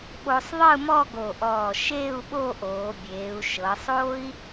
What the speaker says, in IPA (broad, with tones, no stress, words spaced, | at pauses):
ɓo˧sˤðˤɯ˥˧mɔ˥˧ ɡo˧˩ʔɔː˧˩ʃeː˥˧u̯ ɓo˥˧ʔoː˩˧bʲeː˩˧u̯ ʃɤ˩˧sˤoː˥i̯